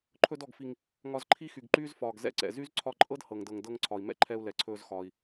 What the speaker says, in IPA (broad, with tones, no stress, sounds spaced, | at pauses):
ǃʰ ɵ˧ d ɔ˩ ɡ f i˩ ŋ | ŋ ɒ˧ z ǃʰ i˥ x y˩ ɡ ǃ yː˥ z f ɒː˩ ɡ z ɛ̰˧ ǀ ɛ̰˩ z y˥ z ǀʰ ɒ˧ ǃʼ ɤ˥ d h ɤ˩ ŋ d ɤ˩ ŋ d ɤ˧ ŋ ǀʰ ɒ˩ i̯ m ɛ̰˥ ǃʰ ɛ˧ u̯ l ɛ˩ ǀʰ ɵː˧ z x ɒː˩ i̯